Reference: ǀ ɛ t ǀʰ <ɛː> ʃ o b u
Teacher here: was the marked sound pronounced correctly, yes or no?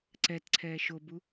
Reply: yes